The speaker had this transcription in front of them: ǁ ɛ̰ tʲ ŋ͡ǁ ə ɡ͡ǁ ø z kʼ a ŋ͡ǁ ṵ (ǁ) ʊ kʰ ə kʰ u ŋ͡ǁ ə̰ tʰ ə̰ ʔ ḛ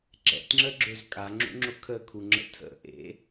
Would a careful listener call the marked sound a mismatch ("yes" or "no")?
yes